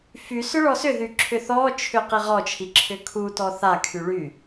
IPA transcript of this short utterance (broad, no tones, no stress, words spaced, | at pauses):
fysʏ ɭɔsʏðy ǁʰʏθɔt͡ʃʰʏ qiʁɔt͡ʃʰi ǁʰʏkʰutɔ θakʰy ɭy